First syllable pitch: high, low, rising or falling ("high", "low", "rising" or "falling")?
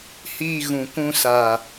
low